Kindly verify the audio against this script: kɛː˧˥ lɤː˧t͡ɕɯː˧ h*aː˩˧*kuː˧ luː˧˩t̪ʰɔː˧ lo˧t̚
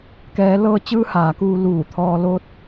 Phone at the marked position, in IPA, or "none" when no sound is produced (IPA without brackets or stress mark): aː˩˧